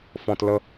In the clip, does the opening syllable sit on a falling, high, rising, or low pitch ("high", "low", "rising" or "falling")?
low